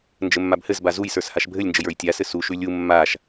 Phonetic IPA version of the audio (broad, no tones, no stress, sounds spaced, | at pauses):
n d͡ʒ ɘ mː a b h ɘ z b a z u j s ə˞ s h a ʃ bʱ ɘ lʲ n d͡ʒ ɘ j ə˞ j tʲ a s ɘ s u ʃ ʉ lʲ u mː a ʃ